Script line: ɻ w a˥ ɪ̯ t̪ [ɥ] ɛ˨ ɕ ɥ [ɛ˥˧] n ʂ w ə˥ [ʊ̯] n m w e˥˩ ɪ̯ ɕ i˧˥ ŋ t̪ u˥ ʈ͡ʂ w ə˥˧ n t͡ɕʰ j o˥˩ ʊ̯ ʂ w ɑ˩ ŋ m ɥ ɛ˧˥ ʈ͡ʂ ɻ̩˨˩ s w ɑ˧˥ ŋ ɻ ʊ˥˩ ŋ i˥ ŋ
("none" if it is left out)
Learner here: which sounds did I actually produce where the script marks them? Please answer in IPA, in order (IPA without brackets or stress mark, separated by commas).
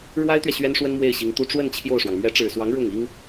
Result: ɥ, ɛ˥, none